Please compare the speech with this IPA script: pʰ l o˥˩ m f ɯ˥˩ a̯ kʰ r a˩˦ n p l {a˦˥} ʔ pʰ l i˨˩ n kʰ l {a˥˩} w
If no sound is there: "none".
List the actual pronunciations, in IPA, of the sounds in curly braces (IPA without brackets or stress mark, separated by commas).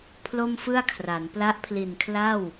a˦˥, a˥˩